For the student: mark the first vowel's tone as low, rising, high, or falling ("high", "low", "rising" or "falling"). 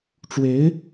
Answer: rising